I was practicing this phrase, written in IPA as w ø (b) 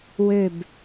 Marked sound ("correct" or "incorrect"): correct